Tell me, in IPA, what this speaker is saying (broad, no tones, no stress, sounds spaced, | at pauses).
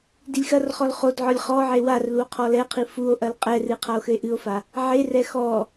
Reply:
d i lʲ x ɐ r χ ɔ l χ o d ʕ ɔ lʲ χ ɔ ʕ e w a r l u o̯ qʰ ɔ l ɛ qʰ i f u o̯ ʔ ɐ l qʼ ɛ r ɨ qʰ a o̯ x ɘ e̯ ʔ ɨ o̯ f a | ʕ e r ɛ x ɔ